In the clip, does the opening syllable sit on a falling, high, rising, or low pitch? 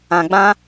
low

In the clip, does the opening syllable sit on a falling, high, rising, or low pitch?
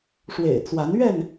low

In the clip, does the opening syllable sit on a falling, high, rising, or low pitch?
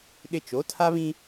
high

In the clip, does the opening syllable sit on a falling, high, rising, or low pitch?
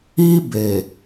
high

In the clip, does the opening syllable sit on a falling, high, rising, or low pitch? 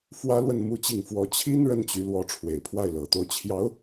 high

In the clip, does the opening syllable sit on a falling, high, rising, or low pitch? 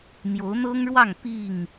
rising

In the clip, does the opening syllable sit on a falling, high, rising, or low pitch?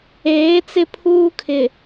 rising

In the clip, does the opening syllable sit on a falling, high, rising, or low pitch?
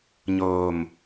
low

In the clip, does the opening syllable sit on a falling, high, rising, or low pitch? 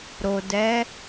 low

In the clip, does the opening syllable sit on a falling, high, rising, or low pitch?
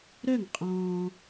falling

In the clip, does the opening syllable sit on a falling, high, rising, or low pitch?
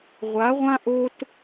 rising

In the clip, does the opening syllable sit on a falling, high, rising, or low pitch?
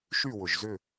falling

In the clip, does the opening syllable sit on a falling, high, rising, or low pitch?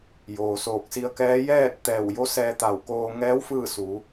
low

